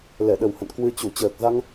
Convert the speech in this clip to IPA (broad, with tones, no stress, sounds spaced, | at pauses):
l ɛ˧˩ ɗ ə˨˩ w h ə̰˧˨ n k w ɨ˧ t͡ɕ u˧˩ t͡ɕ əː˨˩ k̚ z a˧ ŋ